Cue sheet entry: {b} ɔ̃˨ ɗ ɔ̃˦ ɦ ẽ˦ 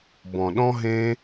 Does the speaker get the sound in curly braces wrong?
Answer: no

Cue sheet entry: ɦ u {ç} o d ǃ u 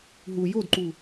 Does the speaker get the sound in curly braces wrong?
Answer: yes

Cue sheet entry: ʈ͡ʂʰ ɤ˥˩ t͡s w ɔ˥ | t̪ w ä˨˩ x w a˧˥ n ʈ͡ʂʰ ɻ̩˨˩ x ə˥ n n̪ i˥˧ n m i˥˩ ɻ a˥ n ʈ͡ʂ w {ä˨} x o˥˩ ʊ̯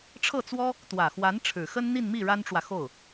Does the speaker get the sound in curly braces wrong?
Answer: no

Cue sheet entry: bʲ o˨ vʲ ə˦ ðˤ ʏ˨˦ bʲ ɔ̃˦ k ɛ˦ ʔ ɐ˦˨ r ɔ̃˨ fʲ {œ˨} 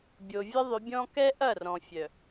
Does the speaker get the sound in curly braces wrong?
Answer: no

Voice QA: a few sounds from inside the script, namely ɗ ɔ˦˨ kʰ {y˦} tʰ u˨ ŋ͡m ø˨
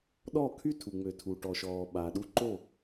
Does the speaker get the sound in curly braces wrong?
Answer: no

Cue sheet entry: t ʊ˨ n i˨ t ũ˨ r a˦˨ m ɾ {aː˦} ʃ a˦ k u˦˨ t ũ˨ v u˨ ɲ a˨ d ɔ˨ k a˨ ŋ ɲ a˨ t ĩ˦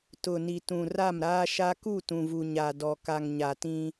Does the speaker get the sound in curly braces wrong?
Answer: no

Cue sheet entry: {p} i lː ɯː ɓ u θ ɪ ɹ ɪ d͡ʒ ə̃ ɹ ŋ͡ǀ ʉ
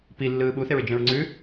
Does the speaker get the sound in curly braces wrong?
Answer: no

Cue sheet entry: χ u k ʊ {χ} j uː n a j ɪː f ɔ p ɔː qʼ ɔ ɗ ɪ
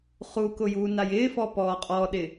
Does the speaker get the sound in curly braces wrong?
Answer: yes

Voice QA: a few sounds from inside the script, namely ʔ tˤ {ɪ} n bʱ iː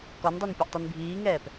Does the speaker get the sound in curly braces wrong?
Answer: yes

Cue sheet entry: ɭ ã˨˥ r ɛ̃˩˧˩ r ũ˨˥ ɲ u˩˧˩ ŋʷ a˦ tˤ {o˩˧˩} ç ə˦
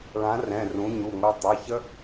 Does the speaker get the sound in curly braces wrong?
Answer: no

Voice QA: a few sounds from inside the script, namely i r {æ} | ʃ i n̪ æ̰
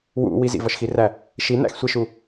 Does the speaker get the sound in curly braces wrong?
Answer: no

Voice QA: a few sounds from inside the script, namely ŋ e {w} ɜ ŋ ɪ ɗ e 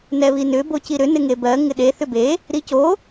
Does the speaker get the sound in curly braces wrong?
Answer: yes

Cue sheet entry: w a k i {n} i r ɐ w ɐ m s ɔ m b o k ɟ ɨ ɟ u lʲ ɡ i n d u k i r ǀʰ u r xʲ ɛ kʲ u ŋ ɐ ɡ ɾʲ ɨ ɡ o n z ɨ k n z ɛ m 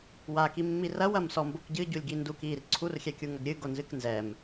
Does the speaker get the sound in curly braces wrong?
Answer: yes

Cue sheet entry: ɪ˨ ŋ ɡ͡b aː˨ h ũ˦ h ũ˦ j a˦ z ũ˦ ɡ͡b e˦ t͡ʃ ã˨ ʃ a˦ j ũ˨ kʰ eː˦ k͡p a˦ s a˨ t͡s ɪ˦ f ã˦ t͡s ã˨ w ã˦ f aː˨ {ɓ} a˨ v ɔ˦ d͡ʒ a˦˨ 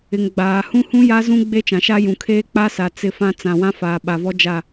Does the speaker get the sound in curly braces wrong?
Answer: no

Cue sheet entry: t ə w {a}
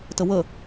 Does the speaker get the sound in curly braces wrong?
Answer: yes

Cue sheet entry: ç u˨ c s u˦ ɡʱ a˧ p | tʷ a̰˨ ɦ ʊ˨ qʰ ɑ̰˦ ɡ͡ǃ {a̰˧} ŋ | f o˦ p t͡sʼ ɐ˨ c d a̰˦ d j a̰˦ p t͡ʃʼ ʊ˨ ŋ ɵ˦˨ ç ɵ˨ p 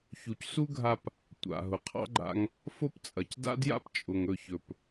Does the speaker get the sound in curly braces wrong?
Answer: no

